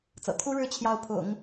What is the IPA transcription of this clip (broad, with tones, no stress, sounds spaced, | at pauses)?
t͡s ɤ̰˨˩ t̪ʰ u˥ ɻ ɻ̩˥˧ t͡ɕʰ j ɑ˥˩ ʊ̯ pʰ ʊ̰˨˩˦ ŋ